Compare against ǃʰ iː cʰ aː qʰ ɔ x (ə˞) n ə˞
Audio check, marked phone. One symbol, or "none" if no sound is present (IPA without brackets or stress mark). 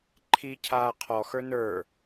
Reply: ə˞